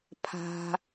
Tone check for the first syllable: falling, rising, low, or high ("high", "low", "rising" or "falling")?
low